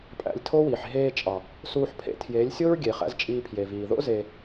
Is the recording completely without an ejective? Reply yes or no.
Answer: no